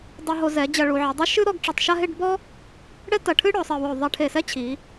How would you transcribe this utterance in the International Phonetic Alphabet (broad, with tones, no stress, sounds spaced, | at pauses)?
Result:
dˤ u˧ ɦ o˧ z ɛ˩˧ d͡ʑ ɐ˧ ɭ u˩˧ ʕ i˩˧ dˤ ɨ˥ ʃ ɨ˥ ɾ ɔ˥˧ ɡ ʈ͡ʂ ɘ˧˩ tˤ ʃ a˥˧ ɦ e˥˧ ɖ b ɔ˥ | ɽ ɛ˥ t ɐ˧˩ ʈʰ ɨ˥ ɽ ɔ˩˧ sˤ ɘ˧˩ w o˧˩ ðˤ ɛ˧ ʈʰ e˧˩ s ɛ˥ t͡ɕʰ i˩˧